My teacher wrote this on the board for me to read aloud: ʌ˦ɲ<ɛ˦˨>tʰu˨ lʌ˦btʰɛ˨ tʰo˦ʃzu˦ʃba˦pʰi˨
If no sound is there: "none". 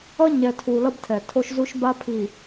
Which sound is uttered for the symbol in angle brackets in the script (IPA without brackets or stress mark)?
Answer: ɛ˨